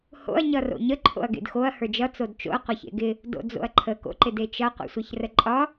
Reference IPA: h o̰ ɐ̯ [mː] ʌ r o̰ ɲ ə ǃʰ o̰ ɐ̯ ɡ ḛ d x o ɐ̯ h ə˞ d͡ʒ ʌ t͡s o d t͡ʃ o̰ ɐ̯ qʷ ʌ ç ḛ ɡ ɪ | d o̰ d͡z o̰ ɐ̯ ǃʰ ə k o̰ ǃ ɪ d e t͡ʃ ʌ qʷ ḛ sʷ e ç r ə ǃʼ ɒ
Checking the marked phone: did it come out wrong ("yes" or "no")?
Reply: yes